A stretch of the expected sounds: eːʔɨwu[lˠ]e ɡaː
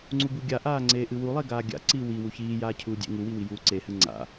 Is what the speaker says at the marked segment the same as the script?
yes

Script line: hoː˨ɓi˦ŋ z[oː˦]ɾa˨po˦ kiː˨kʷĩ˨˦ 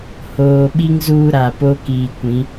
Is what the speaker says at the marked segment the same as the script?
no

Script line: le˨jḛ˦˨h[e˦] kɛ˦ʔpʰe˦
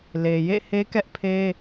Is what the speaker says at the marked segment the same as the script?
yes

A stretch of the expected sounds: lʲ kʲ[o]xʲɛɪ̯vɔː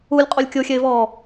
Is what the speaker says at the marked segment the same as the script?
yes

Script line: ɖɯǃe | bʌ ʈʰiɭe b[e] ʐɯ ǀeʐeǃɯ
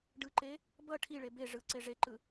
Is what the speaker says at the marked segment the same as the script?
yes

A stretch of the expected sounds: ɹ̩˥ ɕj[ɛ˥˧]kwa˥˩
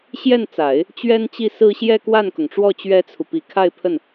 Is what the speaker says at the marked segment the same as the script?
yes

